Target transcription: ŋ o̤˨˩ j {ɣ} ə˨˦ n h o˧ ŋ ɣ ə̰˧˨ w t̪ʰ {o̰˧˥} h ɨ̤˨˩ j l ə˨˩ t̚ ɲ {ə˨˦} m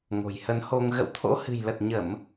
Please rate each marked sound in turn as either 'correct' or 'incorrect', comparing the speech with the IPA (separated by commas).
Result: incorrect, correct, incorrect